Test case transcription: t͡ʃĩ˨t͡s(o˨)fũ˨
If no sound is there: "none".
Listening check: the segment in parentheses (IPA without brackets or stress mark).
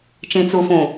u˨